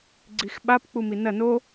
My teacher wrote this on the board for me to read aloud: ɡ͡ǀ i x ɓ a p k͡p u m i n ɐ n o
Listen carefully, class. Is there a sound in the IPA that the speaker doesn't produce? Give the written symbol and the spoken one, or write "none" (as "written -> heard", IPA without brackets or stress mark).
none